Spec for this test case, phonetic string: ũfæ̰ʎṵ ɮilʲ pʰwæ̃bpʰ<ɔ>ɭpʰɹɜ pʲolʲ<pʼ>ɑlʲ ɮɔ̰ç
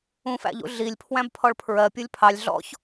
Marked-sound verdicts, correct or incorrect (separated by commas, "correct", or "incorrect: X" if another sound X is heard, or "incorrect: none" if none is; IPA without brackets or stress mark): correct, incorrect: pʰ